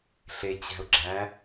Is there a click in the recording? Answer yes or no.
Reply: yes